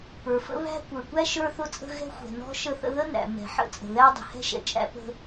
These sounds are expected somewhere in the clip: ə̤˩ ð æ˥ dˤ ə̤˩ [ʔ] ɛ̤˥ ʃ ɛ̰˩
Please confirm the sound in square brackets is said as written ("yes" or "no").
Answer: no